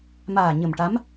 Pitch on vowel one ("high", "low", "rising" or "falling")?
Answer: low